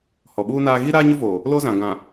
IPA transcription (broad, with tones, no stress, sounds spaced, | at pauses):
h ɔ˨ ɓ uː˦ n aː˦ ɣ i˦ ɾ aː˦ ɲ ʊ˦ v oː˨ | l o˦ z ã˨ ɡ ã˨